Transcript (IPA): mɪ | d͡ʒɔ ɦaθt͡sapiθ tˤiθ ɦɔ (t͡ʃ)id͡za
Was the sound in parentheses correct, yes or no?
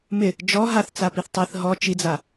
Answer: yes